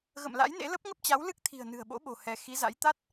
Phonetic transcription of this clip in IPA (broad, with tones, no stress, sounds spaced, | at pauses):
ɣ ə̰˧˨ m l a̰˧˥ j n ḛ˧˥ l ə˦˥ p̚ ŋ ə˦˥ p̚ t͡ɕ a˨˦ w l ɨ˦˥ k̚ t̪ʰ i̤˨˩ ə̯ n ɨ̤˨˩ ə̯ ɓ o̰˧˥ ɓ o̤˨˩ h ɛ˨˦ x i˨˦ z a̰˧˥ j t̪ a˦˥ t̚